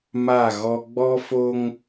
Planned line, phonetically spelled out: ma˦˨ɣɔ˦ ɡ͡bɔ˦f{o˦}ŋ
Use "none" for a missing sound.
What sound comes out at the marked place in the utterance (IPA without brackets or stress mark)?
o˦